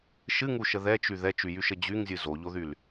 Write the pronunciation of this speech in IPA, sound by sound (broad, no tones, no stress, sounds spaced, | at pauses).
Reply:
ʃ ɨ ŋ u ʃ ə ð ɛ t͡ʃ y ð ɛ t͡ʃ y j y ʃ ə d͡ʑ y ŋ zʲ ɨ z o ʎ o ð y l